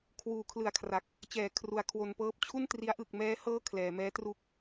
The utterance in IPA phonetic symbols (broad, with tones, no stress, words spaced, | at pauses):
kʰwuː˩˦kʰlɯ˨˩a̯kʰra˨˩k̚ | t͡ɕɛː˨˩kʰru˨˩a̯kʰwo˧npɤː˦˥p̚ t͡ɕʰu˥˩ntri˦˥a̯ ʔɯ˨˩k̚mɛː˦˥ hɤː˥˩kʰlɛː˩˦ mɛː˦˥ tru˥˩k̚